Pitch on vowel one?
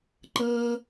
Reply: low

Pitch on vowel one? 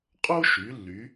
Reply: high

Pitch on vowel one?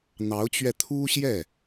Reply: rising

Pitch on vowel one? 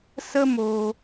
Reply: high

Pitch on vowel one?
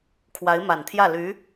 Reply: rising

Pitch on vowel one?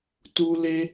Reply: high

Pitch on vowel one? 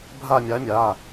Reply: falling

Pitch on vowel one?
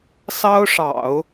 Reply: high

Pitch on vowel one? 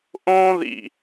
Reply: high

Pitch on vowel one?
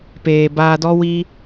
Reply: low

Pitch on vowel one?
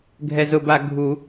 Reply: low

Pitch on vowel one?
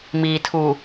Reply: low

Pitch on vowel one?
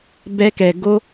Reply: high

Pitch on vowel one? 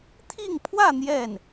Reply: falling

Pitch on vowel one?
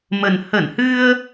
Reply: low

